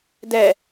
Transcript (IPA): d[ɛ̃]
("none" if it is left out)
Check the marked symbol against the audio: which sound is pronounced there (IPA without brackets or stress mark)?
ɛ